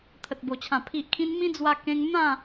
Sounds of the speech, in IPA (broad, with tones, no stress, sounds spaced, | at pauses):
t̪ʰ ə˨ t̚ b o˨˩ t͡ɕʰ ã˨˩ pʰ i˨ ʔ kʰ ĩ˧ n m ĩ˦ d͡z w a˧ k ẽ˧ ŋ n̪ ã˥˧